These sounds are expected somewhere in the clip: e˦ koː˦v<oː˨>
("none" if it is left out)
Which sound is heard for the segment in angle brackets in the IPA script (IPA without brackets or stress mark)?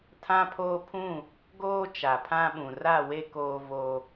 oː˦